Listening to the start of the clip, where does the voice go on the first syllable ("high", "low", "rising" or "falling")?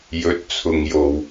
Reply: rising